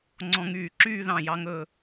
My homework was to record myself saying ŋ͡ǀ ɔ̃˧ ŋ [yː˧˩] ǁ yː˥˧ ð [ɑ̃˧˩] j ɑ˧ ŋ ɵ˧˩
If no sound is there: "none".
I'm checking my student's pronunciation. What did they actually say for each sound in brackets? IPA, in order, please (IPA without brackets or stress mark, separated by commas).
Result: yː˧˩, ɑ̃˧˩